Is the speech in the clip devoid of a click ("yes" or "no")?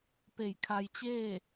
yes